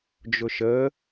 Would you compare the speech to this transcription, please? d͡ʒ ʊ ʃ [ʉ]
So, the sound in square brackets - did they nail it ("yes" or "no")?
no